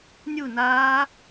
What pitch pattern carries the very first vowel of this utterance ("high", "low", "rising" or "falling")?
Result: falling